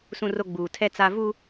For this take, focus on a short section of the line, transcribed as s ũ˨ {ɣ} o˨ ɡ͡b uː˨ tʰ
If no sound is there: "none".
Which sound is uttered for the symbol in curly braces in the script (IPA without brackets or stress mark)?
r